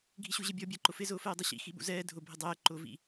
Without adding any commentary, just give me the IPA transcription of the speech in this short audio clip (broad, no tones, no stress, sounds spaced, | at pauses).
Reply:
ɡʱ i ɕ u ʑ e bʲ ɔ bʲ a ǃ ʊ f ɪ z ʊː f ɛː dˤ i ɕ ḭ x i ɓ ṵ z ɛː dʱ ʊ bʱ ɪ dˤ ɛː ǃ ʊː v ḭ